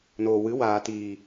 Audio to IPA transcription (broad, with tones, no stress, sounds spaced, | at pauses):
n oː˨ w ɨ˨˦ w aː˨ t iː˨